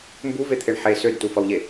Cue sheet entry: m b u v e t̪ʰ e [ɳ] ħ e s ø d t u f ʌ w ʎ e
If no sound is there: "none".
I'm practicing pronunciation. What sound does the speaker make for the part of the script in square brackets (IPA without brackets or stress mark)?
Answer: ɳ